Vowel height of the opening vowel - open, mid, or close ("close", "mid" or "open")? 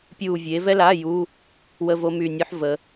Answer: close